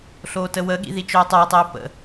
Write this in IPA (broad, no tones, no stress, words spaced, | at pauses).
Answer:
ɬoːtəwəɠḭ ðit͡ʃœːtˤœə̯tˤeʊ̯ pə̰